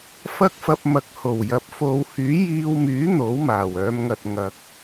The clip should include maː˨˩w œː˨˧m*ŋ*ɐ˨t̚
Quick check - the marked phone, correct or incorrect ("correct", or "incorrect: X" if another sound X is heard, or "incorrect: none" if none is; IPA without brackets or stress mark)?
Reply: correct